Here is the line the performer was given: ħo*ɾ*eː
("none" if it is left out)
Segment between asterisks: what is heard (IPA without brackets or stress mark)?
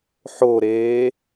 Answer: ɾ